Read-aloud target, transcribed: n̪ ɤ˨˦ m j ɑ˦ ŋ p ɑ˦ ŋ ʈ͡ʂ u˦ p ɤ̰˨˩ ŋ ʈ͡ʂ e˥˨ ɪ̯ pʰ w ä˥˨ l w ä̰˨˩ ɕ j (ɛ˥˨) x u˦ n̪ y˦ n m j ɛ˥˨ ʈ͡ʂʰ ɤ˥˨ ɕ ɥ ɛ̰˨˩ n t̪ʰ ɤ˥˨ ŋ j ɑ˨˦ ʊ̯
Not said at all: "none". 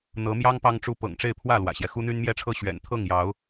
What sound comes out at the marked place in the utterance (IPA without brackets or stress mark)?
ɛ˦